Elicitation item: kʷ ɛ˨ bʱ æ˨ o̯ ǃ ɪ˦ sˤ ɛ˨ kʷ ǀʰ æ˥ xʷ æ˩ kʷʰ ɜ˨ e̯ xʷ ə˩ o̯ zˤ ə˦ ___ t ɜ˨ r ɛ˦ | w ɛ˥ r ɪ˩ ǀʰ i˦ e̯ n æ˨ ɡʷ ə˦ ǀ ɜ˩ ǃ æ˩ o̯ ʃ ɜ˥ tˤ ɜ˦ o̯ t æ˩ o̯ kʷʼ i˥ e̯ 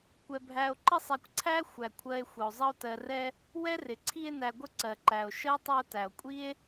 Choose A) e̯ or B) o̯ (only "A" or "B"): B